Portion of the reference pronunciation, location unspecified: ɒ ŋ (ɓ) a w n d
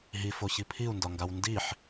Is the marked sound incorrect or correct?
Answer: incorrect